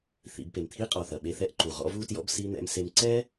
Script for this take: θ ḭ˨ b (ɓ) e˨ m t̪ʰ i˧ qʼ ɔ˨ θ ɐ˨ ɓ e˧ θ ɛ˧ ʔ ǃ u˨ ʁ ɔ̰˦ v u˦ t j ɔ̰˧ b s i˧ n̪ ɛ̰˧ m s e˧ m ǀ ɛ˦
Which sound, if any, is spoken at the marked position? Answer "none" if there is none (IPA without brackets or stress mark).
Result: p